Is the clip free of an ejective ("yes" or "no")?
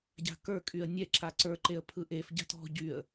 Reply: no